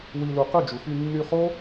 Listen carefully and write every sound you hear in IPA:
w i˧ l u˧ q ɯ˦˨ d͡ʒ u˨ f y˧ nː y˧ χ o˦

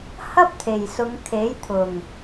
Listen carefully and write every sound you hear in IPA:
h ɐ˥ p̚ t̪ʰ e˨˩ j s ʊ˨˧ ŋ kʰ e˨˥ j t̪ʰ ʊ˨˩ ŋ

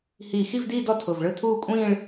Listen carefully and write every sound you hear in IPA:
h iː˧˩ x i˥˧ v d iː˥˧ d ɔ˥˩ tʰ ʊ˧˩ v ɭ ɯ˥˧ tʰ uː˥˧ kʷʼ ĩː˥˧ ɭ

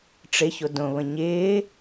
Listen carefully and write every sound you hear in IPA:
ʈ͡ʂ ɪ ç o d õ β ə̃ ɲ ɪː

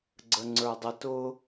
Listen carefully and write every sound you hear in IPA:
ɡ͡ǀ ə ŋ͡ǀ ə˞ dˤ ə t ʊ

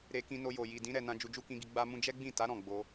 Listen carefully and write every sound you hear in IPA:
ɾ e˧ k ĩ˧ n o˧ j o˨ j i˨ d ĩ˨˦ ɾ ɛ˧ n ã˦ d͡ʒ u˧ d͡ʒ u˦ k ĩ˧ ɡ i˧ ɡ͡b a˦ m ũ˦ d͡ʒ ɛ˦ ɡ͡b ĩ˦˨ t a˨˦ ɾ ɔ̃˦˨ ɡ͡b o˧

